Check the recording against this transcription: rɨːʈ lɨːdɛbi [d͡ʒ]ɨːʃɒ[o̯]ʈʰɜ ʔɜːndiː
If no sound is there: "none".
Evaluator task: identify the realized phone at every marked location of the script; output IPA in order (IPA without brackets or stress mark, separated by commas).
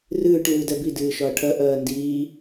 d, ɐ̯